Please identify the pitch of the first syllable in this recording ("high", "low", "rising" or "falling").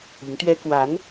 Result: rising